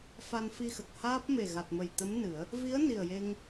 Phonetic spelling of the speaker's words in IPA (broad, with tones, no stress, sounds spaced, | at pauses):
f a˧ n f i˧ x ə˨˩ k̚ h aː˦˥ p̚ m e˨˩ ɣ a˨˩ t̚ m ə˨˩ j t̪ ə˧˥ m n ɨ˨˩˦ ə̯ | v i˧˥ ə̯ n i˨˩ ə̯ j e˧ ŋ